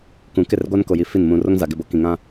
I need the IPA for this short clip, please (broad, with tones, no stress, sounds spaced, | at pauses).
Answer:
k ũ˨ k ɪ˦˨ r ɡʷ a˦ n k o˨ j i˨ f i˦˨ n m ũ˨ r o˦ ŋ z a˨ ɡ ɪ˦˨ b o˦ k ĩ˨ ŋ ã˦